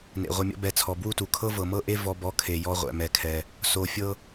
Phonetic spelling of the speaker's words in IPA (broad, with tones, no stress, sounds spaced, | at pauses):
n ḛ˨ ʁʷ ɤ˧ mʲ ɔ̰˦ b ɛ˧ t͡sʰ ɔ˨ b w u˦ t u˨ kʰ ɤ˦ v ɤ˨ m ɤ˦ ʔ e˦ v ɔ˦ b ɔ˦ kʰ e˧ j ɔ˦ ʁʷ ɛ̰˧ m ɛ˧ kʰ ɛ˧ | s o˨ fʲ ɤ˦